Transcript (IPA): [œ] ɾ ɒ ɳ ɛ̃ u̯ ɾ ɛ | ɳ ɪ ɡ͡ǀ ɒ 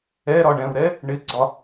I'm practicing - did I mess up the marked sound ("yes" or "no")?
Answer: yes